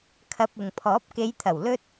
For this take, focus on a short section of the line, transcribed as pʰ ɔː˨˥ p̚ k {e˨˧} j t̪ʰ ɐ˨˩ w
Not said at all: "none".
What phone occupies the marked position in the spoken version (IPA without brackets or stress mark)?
e˨˧